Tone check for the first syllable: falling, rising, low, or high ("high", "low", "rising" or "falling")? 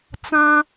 high